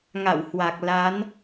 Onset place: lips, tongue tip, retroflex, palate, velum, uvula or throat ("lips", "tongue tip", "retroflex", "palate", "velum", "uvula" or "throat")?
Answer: velum